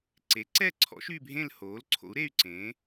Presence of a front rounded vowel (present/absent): present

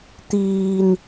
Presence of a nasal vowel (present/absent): absent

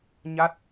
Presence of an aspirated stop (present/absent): absent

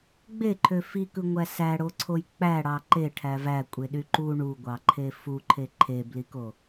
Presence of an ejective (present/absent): present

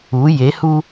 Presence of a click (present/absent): absent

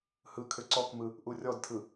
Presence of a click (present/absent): present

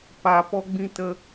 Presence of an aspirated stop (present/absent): absent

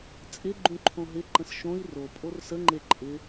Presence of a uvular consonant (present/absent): absent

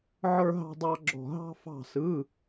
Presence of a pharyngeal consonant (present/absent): present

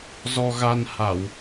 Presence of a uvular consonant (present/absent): absent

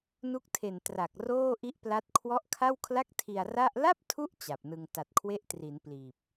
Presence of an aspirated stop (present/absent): present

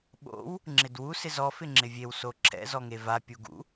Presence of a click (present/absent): present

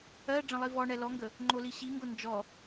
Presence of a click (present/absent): present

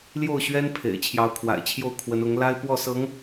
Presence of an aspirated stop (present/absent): present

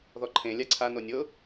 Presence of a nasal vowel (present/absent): present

